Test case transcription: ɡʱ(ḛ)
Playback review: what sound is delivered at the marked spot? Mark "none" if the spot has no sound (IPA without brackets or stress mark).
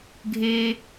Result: e